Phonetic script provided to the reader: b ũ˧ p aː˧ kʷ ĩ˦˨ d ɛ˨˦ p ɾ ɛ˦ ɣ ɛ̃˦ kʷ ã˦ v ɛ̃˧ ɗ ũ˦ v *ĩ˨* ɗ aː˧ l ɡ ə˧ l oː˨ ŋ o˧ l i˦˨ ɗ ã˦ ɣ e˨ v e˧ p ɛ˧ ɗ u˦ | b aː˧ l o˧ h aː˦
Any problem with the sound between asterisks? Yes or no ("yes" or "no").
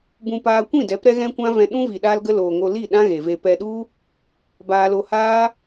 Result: yes